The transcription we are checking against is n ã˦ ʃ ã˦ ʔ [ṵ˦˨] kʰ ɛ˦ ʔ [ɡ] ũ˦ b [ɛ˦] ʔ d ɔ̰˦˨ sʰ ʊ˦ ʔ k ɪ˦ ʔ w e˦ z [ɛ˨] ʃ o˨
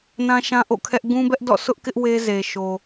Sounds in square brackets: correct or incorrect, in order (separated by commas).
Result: incorrect, correct, correct, incorrect